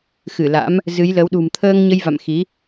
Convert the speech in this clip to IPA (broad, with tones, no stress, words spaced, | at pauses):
xɨ˧˩la̰˧˥m | zɨ˨˦jlə˨˦w ɗṳ˨˩mt̪ʰəː˧ŋɲə˧jva̰˧˨m xi˨˦